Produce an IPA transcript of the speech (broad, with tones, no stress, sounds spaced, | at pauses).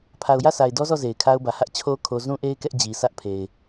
pʰ a˨ ʊ̯ j ä˦˨ sʰ a˨ ɪ̯ d ɔ˦ z ɔ˦˨ z e˨ ɪ̯ kʰ a˦ ʊ̯ b ä˨ h ä˦ ʔ t͡ɕʰ o˦ kʰ o˦ z ũ˦ ʔ e˦ ɪ̯ k ɛ˦ ʔ d͡ʑ i˨ s ä˦ ʔ pʰ e˨ ɪ̯